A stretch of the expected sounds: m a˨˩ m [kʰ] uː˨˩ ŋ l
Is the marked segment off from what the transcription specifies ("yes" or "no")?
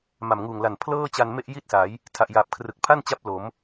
yes